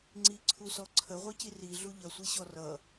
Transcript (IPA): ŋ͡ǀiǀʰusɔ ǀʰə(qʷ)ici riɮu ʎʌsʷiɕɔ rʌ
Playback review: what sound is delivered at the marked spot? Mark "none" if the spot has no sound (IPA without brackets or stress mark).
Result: ʁʷ